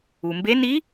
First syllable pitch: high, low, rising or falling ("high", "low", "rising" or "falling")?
low